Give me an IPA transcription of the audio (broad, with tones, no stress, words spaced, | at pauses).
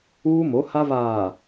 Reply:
uː˦ mo˨˦ ha˦ βaː˨